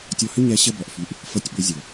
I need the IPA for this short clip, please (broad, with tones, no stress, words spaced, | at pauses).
tʲɔ˧hʏ˦ ɲɛ˨˦ ɕə˧bɔ˨ʔfy˨ʔ | fɤ˧tʲɓʏ˨˦zʲo˨